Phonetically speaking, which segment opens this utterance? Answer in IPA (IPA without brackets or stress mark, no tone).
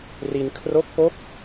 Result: r